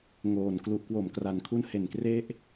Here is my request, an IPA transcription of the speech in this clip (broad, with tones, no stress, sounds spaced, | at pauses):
ŋ oː˨˩ n k l u˨˩ ʔ k w o˨˩ m k r a˨˩ n kʰ u˦˥ n h e˨˩ n k r e˦˥ ʔ